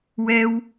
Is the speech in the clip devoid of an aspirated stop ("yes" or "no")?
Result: yes